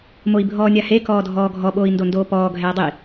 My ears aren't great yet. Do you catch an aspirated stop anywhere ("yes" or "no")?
no